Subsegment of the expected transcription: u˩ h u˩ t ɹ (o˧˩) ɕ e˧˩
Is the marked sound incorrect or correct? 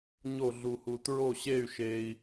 correct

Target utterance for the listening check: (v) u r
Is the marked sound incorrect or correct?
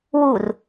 incorrect: w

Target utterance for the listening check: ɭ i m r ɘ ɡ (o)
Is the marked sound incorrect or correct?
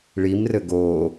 correct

